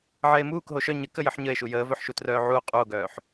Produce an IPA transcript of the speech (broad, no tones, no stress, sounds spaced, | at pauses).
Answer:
ʕ ɛ e̯ m uː k ɦ o ʃ œ ɲ ə k ə j ə ħ ɲ ə e̯ ʃ u j əː v œ ħ ʃ u t r œː ʕ u o̯ qʼ u o̯ ɡ œː ħ